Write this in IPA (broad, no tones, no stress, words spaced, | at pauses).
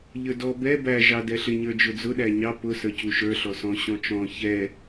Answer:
ʎə˞dɔ bɛ bæ ʒɑdɛɬɪ ɲə˞d͡ʒʊd͡zʊ ɗæɲɑ pʊ sə˞cuʃə˞ ɬɔsɔ̃ ɕɔ̃t͡ʃɔ̃ çɛ